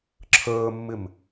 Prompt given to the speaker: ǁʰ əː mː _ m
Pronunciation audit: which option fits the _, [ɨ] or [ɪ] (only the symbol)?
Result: ɪ